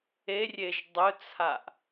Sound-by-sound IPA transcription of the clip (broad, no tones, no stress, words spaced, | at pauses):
erʲeʒ dˤɵt͡sʰaʔ